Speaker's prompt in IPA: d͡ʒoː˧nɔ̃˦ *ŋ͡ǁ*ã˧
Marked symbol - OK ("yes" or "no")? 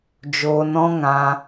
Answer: no